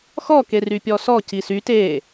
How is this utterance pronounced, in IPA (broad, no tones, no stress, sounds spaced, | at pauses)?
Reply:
x ɔ k e r y pʲ ɔ s ɔ c i s y t e